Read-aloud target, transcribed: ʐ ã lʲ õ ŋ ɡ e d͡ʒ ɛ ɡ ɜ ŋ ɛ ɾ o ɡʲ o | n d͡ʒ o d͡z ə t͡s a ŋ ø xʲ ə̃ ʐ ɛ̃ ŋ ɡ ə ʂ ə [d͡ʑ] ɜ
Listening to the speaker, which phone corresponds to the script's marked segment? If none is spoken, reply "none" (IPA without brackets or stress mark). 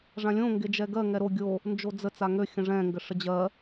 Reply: d͡ʑ